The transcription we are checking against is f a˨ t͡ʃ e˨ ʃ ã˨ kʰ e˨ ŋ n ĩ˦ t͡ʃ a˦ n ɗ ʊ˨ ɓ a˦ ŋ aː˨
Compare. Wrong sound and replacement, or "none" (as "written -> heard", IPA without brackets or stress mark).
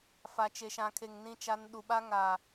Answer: ʊ˨ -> u˨